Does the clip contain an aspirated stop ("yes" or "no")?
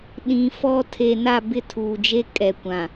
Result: yes